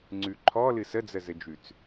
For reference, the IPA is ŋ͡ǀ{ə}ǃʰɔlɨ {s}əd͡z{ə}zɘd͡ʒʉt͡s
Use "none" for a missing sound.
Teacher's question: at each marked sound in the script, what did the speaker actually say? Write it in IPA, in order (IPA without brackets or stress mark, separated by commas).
ʉ, s, ə